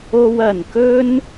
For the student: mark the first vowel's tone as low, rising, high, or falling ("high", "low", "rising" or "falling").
high